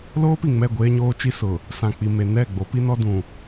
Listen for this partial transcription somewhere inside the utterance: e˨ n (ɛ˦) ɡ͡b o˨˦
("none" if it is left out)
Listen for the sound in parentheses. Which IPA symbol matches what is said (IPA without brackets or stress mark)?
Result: ɛ˦˨